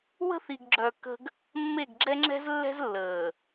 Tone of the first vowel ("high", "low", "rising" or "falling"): high